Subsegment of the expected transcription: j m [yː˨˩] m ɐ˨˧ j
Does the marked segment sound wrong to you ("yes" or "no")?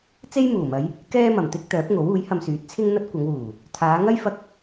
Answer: yes